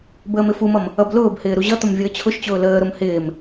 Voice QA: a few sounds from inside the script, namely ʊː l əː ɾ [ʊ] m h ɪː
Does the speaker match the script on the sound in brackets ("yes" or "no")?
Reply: yes